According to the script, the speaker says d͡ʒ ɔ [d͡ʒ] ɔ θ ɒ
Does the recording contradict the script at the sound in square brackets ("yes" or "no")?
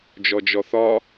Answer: no